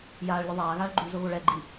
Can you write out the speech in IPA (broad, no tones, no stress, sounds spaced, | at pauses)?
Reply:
j aː ɭ lʲ ɘ ðˤ aː ɣ aː ɭ ɡ͡ǃ u z o ɣ o ɭ ɛ ɡ͡ǃ i